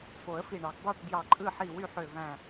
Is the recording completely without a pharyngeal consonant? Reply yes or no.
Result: no